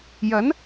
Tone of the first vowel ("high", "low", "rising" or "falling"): rising